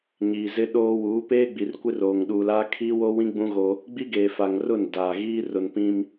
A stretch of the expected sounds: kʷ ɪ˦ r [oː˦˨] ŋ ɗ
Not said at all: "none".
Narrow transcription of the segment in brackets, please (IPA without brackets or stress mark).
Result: oː˨